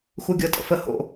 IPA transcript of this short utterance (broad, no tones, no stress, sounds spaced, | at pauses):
x u ɡʲ ɤ tʼ ə̰ f ə h o̰